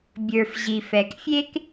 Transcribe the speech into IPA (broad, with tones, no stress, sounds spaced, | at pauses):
bʲ ə˞˩ f ʑ i˩ f ɛ˩ k fʲ e˥ k